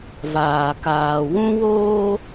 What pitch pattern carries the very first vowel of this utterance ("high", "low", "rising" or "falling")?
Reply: low